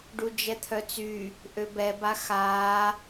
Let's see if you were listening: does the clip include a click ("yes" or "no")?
no